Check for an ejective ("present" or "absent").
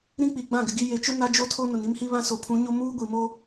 absent